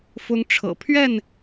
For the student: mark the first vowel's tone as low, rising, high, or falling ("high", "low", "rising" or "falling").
high